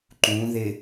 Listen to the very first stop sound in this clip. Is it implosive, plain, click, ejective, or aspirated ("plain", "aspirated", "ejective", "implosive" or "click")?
click